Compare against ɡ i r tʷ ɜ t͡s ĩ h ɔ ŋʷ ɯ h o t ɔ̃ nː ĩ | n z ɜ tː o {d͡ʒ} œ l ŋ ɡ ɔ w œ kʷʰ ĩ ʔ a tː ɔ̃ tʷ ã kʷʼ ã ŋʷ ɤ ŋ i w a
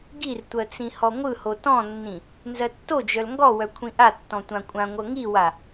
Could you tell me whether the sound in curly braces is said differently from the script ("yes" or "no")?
no